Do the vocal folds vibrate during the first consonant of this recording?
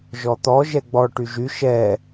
yes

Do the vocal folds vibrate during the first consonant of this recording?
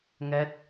yes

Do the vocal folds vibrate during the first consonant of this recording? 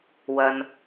yes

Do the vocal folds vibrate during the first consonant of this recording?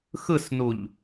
no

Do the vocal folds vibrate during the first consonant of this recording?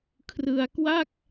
no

